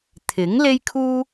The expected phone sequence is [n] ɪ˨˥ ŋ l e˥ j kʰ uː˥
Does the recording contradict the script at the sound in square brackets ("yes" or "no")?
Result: yes